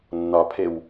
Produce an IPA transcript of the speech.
nː ɒ pʰ e w

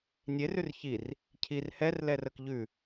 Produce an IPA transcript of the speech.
nʲ e r ʉ r ç i r | cʰ i r h ɛ r l ɛ r ə k ʎ ʉ

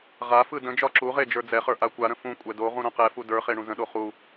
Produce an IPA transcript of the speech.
ʁ a f ɯ d ə̃ d͡ʒ ɒ ǁ u ʁ e d͡ʒ ə˞ d͡z ɛ χ ə˞ ʔ a kʷ a ɾ ə̃ f ũ kʷʼ ɛ d o ʁ ũ ɾ õ q ɛ f u d ə˞ χ e ɳ ũ z ə̃ ɗ o χ u

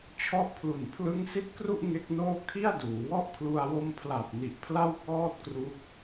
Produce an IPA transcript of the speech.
t͡ɕʰ ɔ˦˥ ʔ pʰ l u˨˩ n pʰ l ɯ˦˥ ŋ s i˦˥ t̚ k r u˥˩ ʔ ŋ e˦˥ k̚ n oː˥˩ kʰ i˥˩ a̯ d uː˩˦ w ɔ˥˩ ʔ kʰ l u˧ a̯ w o˧ m pʰ l a˨˩ p̚ n i˨˩ ʔ pʰ l a˥˩ w k ɔː˥˩ t̚ k r u˦˥ k̚

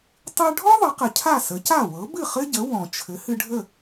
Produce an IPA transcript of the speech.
tˤ ɨ˧ ɖʱ ɔ˥ ðˤ ə˩˥ q ə˩ cʰ a˥˩ s ə˩˥ c a˥˩ w ɤ˩˥ b ɨ˥˩ χ ɘ˥ ɟ ə˩˥ w ɔ̃˩ t͡ʃʰ ɘ˩˥ h ɨ˧ ɖʱ ə˥˩

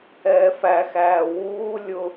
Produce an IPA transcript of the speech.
ɛː f æ x æː w uː lʲ ʊ

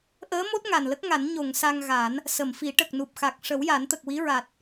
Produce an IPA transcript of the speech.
ʔ əː˧˥ m o˦˥ t̚ ŋ a˨˩ n l ə˦˥ k̚ ŋ a˨˩˦ n ɲ o˨˩˨ ŋ s a˧ ŋ ɣ a˨˩˦ n | s ə˨˩˨ m f i˨˩˦ ʈ ə˨˩ k̚ n u˨˩ p̚ x a˨˩ k̚ ʂ ə˨˩˦ w j a˨˩˦ n t̪ ə˨˩ k̚ w i˧˥ ɹ a˨˩ t̚

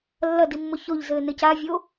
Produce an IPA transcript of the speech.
lː ɐ d i mː o ç o ʎ z ɘː n ɘ c aː vʲ o

